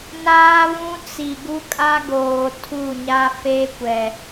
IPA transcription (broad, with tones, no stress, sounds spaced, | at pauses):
n aː˦ β ũ˦ t͡s i˨ ɡ u˦ kʼ a˦ ɡ oː˨ tʰ u˦˨ ɲ a˦ f e˦ kʷ ɛ˨